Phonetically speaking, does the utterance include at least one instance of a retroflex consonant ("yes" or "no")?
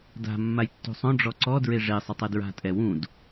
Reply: yes